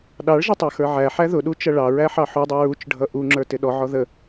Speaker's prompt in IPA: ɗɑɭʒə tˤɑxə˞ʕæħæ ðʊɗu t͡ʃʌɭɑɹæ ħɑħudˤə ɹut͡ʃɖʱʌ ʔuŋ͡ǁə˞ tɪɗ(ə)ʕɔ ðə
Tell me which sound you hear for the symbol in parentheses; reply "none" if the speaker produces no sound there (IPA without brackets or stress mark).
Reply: ɔ